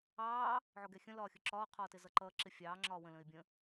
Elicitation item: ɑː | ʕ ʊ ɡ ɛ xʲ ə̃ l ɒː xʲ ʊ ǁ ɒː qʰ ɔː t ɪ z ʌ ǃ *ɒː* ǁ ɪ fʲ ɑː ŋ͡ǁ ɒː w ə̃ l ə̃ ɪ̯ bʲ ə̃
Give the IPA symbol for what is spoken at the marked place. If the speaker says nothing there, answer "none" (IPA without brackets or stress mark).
ʌː